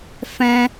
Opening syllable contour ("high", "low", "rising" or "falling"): high